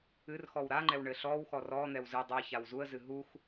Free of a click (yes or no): no